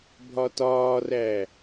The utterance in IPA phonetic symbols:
bʱ ɒ t ɒː r æː

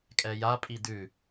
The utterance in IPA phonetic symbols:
kʼ ɛ j a pʼ i d ʉ

